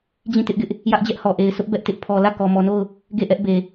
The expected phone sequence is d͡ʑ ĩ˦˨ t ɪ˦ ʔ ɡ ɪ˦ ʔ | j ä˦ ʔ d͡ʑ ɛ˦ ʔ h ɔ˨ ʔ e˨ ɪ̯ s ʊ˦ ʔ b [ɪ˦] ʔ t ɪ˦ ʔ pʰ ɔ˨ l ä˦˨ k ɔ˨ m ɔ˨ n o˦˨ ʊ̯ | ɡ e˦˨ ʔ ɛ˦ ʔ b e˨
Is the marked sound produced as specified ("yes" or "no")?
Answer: no